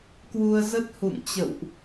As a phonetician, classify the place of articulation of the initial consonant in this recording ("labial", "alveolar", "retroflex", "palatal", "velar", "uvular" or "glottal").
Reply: velar